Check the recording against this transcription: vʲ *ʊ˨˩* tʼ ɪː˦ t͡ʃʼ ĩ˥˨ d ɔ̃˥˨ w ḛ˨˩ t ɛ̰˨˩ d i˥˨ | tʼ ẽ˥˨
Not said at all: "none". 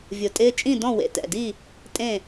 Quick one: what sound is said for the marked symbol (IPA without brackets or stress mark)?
ʊ˨˩